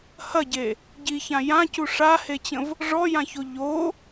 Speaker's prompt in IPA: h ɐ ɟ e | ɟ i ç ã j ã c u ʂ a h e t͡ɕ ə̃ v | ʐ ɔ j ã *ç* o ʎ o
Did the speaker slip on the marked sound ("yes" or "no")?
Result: no